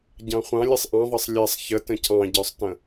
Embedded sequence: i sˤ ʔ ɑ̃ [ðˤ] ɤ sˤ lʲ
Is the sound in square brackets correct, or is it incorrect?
correct